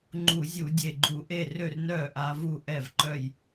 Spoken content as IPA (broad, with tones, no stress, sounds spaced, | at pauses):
ŋ͡ǃ u˧˩˧ zʲ u˧˩˧ dʲ e˧˩ ɡ͡ǃ u˧˩˧ ʔ e˥˩ r ø˥˩ r n œː˥˩ ʔ a˨˦ v u˥˩ ʔ ɛ˥˩ v ǃ œ˥˩ j